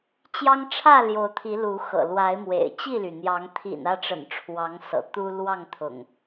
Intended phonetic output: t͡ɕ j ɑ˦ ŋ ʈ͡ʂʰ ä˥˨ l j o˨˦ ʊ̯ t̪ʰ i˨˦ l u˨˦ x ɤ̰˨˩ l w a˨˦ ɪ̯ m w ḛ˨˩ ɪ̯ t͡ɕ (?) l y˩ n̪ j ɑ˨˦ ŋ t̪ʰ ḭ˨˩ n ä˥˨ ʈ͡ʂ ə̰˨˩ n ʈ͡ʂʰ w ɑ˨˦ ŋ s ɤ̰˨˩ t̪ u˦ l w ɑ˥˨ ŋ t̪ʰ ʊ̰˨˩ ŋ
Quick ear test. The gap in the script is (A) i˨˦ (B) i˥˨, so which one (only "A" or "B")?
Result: B